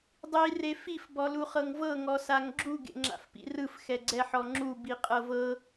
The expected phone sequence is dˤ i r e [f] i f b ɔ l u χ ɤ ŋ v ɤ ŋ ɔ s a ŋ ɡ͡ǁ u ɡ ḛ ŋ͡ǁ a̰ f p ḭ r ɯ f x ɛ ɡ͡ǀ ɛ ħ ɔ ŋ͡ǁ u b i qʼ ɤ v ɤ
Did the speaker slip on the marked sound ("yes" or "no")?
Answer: no